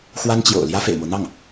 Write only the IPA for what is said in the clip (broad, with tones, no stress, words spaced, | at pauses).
xwa˥nt͡ɕjo̰˨˩ʊ̯ ljä˥fḛ˨˩ɪ̯mo˦ʊ̯ n̪ɑ˥˩ŋ